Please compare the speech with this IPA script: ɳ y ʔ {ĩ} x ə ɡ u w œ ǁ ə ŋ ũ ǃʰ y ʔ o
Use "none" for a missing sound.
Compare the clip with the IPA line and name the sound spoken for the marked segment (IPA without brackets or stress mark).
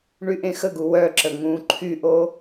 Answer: ẽ